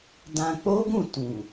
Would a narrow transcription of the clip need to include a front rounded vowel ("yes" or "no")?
no